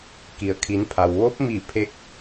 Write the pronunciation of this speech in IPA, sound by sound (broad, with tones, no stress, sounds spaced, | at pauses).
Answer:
k i˩ ə̯ kʰ i˩˧ n pʰ a˩ w ʋ o˧˥ p̚ m i˧˩ pʰ e˧˥ k̚